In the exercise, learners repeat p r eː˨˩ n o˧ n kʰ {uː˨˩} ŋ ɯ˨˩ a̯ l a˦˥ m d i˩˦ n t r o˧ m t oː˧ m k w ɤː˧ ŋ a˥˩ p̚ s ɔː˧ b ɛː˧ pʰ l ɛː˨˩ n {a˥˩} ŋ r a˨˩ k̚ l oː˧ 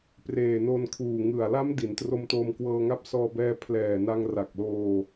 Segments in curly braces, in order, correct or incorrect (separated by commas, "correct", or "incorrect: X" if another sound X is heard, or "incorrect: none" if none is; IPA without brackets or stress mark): correct, incorrect: a˧